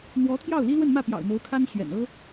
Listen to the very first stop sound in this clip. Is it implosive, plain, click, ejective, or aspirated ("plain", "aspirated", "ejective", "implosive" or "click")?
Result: aspirated